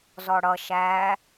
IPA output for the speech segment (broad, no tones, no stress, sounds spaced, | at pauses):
z ɔ ɽ ʌ ʃ æ